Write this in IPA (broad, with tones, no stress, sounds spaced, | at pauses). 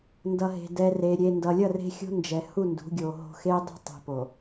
n d ʌ˨ ɦ e̤˨ d ɛ˨ r e˨ ɾʲ e˨ n d ʌ˨ lʲ ʌ˦˨ r e̤˦ xʲ o̤˦ n d͡ʒ ɛ˨ h u˦˨ n d ṳ˨˦ ɡʲ o˨ ɦ o̤˨ x e˦ dˤ e̤˦ tˤ e̤˨ p o˨